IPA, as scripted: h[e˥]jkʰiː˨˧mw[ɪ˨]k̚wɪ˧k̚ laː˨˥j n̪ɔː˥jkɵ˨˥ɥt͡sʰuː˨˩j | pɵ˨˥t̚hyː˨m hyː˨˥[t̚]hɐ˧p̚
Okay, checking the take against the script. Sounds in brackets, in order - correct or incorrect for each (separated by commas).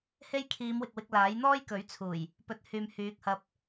correct, correct, incorrect